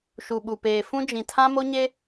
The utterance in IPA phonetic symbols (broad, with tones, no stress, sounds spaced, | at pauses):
ʃ u˨ ɓ u˨ p eː˨ f ũ˦ d͡ʒ ĩ˨ tʰ ã˦ m o˦ ɲ e˦